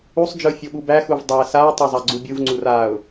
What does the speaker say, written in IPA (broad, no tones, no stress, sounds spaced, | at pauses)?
u sˤ d͡ʒ ɯ fʲ o ɓ u b æ x u v dˤ æ s a ɪ̯ tˤ e zˤ a ɡ͡ǀ u bʲ ɯ v ŋ͡ǀ u r a ʊ̯